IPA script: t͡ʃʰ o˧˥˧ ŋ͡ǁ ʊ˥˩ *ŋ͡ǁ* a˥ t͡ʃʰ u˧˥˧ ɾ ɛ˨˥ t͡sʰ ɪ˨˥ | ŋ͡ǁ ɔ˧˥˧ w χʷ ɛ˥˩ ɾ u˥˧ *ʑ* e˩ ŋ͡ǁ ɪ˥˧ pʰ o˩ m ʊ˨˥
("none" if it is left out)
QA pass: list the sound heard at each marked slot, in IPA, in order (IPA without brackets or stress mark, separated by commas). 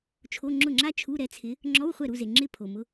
ŋ͡ǁ, z